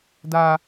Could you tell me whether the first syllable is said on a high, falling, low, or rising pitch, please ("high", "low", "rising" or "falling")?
high